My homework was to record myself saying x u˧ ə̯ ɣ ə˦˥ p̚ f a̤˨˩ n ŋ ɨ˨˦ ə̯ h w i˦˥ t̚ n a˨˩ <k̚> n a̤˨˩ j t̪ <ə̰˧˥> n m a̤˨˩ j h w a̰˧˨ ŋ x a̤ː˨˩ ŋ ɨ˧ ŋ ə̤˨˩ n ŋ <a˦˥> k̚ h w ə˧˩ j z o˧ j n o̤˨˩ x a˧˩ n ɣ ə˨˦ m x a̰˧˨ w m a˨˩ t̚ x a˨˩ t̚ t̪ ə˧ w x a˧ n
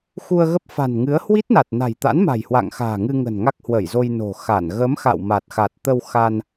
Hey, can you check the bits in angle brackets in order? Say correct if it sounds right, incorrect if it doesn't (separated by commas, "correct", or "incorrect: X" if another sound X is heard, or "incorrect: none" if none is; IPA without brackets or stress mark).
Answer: incorrect: t̚, incorrect: a̰˧˥, correct